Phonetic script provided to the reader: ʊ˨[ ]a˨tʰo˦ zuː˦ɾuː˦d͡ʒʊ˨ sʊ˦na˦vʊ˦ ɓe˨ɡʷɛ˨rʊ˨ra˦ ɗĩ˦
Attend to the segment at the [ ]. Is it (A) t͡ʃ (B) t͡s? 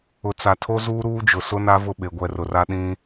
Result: B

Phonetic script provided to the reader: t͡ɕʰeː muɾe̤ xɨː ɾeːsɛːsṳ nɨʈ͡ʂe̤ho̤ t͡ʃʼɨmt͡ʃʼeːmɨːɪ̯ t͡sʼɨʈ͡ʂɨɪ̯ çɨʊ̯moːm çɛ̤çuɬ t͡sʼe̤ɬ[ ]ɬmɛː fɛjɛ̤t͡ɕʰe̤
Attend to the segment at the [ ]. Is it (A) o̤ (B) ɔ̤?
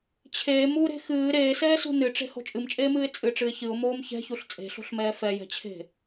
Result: A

